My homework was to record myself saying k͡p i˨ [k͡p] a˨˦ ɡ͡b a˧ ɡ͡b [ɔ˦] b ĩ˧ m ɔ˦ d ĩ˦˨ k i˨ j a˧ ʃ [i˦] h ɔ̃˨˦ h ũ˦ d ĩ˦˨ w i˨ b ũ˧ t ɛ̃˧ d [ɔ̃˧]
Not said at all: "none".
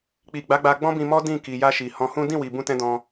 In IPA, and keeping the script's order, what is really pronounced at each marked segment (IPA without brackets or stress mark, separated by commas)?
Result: ɡ͡b, ɔ̃˦, i˨, ɔ̃˧